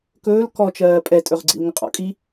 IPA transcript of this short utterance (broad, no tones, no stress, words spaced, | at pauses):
kɵːl kɔt͡ʃɜː pʼɛtʼɵʁɡ͡ǀḭl ŋəqʼɔ̰kʼi